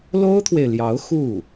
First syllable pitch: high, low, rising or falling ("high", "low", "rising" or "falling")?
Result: high